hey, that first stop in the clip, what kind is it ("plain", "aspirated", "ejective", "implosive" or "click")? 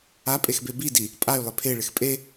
ejective